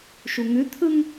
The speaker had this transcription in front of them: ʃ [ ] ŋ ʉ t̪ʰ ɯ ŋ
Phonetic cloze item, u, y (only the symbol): u